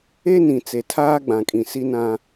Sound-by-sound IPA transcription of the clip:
e˦ n ĩ˨ t͡s e˨ tʰ aː˦ ɡ͡b ã˨ kʼ ĩ˨ s i˦ n ã˦

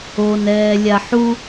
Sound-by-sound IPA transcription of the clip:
o n ɛː lʲ a ħ u

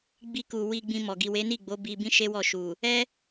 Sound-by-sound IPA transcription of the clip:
ɡ͡b i˧ k u˨ w i˧ ɡ͡b ĩ˧ m ɔ˨ ɡ i˨ w e˨˦ n i˦˨ ɡ͡b o˨˦ b i˧ b ĩ˦ ʃ e˦ w ɔ˦˨ ʃ u˨ | ɛ˦

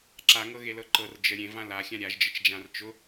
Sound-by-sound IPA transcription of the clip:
ǁ a ŋ ɤ ɣ e l ɤ ǃ ɤ r d͡ʒ ə ɾʲ ẽ v ã l a xʲ ã ɾʲ a ʒ d͡ʒ ə t͡ʃ d͡ʒ ã r t͡ʃ ʊ

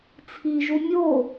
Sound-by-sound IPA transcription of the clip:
t͡sʰ i ʒ u mʲ o

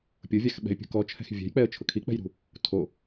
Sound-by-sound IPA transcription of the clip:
pʲ ʊ vʲ a x ɓ ɛ̤ ɪ̯ pʲ ṳ k ɔ t͡ʃʰ ɛ̤ x vʲ ɛ̤ j k͡p ɛ ə̯ t͡ʃʰ ʊ kʰ i k͡p ɛ̤ j ɾ ṳ | tʰ o

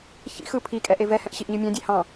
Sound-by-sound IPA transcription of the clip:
ç ḭ x ɯ pʰ i kʼ ɛ ʔ e v ɛ h ɛ̃ ʔ ɕ i ʔ ɲ ɯ mʲ ɑ̃ dʲ ɛ h ɑ̃

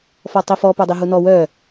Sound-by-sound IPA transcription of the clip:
f ɔ tˤ i f ɔ p o dˤ i ɦ u n ɔ w œ

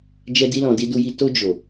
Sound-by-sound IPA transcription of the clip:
d͡ʒ ɛ˧ d i˧ l ɔ̃˨ d i˧ d u˧ j i˧ t o˧ d͡ʒ o˨

